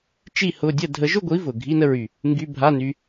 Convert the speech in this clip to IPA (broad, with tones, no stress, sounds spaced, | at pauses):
t͡ʃ i˥˧ h ʊ˧˥˧ dʲ ə˥˧ dʱ ə˨˥ ʒ ʊ˥˧ ɡʷ i˨˥ v ʊ˨˩ ɡʱ i˧˥˧ n ə˥˧ ɹ y˨˩ | ŋ ɡ y˧˥˧ bʱ a˧˥˧ n y˧